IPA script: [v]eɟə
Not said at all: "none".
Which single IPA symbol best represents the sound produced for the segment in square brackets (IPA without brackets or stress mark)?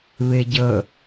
β